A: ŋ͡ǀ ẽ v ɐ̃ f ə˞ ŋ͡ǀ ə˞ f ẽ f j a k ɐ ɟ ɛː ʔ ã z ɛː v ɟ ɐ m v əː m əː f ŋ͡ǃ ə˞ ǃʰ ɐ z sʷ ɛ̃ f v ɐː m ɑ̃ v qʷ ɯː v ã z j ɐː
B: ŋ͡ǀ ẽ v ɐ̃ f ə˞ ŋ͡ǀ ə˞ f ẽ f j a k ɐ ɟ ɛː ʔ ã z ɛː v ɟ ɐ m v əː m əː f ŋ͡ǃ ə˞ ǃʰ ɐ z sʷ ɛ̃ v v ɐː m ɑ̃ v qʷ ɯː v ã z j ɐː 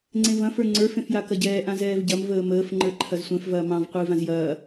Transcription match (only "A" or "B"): A